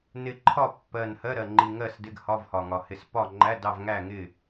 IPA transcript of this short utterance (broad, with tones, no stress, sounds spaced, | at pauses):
n ɪ˨˩ ǃʰ ɒ˥˨ pː ɜ˨˩ n h ɜ˧˥˧ ɾ ɜ˨˩ ŋ͡ǃ i˨˩ ŋ ɜ˥˨ s d ɪ˧˥˧ ɡ h ɒ˧˥˧ v h ɒ˨˩ ŋ ɒ˨˩ h ɪ˨˩ s p ɒ˥˨ ŋ͡ǃ æ˧˥˧ d ɑ˥˨ v ŋ æ˥˨ ŋ ɪ˥˨